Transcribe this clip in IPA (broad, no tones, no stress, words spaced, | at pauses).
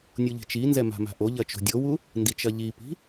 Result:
nʲuʎi̤t͡ʃinzɛ ma̤ma̤ʔoʎɐ t͡ʃo̤dʲowu | ndit͡ʃɐʎipi̤